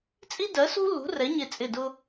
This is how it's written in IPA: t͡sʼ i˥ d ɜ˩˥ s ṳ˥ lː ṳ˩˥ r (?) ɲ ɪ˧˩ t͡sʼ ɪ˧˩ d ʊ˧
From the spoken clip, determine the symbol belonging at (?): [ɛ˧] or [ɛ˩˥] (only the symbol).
ɛ˩˥